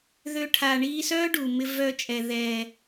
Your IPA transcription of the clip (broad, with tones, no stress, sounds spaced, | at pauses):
ð ø˧ ʈʰ aː˨ ɳ iː˧ s œː˦ ɖ u˨ m ɪ˧ v œ˧ t͡ʃʼ ɛ˨ ð ɛː˨